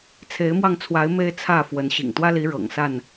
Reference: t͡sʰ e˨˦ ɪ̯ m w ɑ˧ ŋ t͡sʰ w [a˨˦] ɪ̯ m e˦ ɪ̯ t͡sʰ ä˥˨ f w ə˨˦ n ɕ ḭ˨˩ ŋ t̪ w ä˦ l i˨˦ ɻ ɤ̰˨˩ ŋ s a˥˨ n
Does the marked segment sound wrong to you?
no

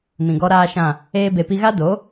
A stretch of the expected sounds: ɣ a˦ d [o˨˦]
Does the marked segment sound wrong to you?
no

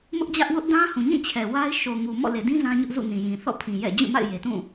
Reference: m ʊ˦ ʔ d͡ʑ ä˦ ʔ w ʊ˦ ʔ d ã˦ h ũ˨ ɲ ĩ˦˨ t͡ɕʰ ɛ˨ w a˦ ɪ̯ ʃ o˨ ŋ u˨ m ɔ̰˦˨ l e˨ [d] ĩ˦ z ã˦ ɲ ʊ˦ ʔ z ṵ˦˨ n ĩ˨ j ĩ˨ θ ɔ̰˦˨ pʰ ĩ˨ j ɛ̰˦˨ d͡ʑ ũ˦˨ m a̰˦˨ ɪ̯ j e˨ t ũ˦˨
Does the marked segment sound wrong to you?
no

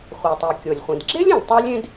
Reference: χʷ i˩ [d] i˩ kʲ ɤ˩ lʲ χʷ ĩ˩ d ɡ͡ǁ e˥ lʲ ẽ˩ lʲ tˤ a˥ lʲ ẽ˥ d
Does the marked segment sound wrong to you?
yes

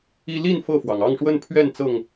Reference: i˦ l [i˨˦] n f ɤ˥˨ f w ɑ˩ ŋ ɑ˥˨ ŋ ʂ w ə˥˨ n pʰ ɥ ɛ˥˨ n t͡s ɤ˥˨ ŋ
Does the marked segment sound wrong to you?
yes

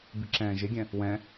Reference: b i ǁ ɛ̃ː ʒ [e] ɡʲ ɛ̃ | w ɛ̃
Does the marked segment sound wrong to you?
no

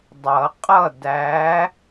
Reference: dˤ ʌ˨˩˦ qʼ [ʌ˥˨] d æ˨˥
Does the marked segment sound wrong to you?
no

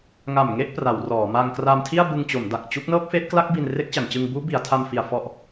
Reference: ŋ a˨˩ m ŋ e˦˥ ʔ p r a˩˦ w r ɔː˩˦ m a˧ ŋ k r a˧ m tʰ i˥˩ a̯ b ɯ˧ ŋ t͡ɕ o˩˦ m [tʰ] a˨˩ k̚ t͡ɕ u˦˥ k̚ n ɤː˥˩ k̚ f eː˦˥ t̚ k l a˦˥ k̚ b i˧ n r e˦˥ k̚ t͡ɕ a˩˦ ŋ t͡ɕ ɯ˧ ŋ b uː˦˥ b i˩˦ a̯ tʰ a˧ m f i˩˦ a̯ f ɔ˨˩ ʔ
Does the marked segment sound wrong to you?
yes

